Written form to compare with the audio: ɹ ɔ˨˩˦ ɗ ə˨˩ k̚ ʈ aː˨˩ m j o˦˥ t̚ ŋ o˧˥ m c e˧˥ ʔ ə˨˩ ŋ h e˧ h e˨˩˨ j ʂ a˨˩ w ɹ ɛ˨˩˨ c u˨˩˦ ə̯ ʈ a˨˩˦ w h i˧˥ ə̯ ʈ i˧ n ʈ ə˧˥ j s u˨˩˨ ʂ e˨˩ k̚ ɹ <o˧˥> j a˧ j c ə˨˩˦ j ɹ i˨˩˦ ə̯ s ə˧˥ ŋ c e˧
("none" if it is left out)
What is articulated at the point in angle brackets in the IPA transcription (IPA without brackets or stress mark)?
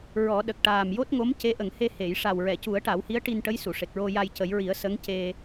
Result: o˧